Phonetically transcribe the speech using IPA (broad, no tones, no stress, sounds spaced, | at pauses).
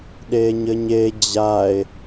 ɗ eː ɲ ɘ ɲ e d͡ʑ a e̯